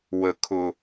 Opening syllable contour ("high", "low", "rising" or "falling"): low